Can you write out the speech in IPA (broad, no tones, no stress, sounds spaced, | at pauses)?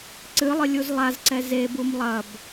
ǀ ɨ lˠ ɨ lʲ u z lˠ a z ǀ ɛ z e b u m lˠ ɐ b